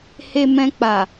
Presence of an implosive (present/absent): absent